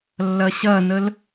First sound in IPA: lː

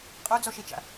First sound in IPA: qʼ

